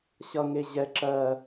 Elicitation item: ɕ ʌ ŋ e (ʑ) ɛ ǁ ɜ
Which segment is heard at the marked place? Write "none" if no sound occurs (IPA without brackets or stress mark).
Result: ʑ